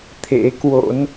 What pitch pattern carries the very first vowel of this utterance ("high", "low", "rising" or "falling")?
rising